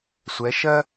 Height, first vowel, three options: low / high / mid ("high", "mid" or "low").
mid